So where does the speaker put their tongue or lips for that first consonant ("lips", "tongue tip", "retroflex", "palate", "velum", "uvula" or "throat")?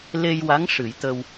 tongue tip